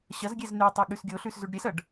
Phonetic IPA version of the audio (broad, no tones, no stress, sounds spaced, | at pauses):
ɕ ɐ z ɡʲ e z n ʉ tˤ ʉ ɠ ʉ s ɡʲ o ɬ ʉ s z ʉ ɖ ɾʲ e s ɐ ɖ